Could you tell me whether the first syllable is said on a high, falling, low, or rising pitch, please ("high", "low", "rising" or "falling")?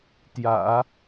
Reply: low